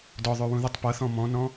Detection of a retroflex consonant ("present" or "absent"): absent